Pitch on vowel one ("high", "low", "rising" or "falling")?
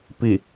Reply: low